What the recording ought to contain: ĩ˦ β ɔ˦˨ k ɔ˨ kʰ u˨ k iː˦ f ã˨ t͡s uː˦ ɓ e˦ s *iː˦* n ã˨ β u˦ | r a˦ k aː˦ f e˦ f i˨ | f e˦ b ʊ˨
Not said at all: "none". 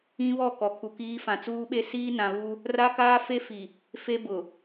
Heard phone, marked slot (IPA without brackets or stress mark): iː˦